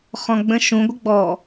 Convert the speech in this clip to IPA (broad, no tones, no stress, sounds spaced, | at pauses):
χ ɔ̃ ɡ͡b ə̃ ʃ ũ ɡʷ ə ɡ͡b ɔ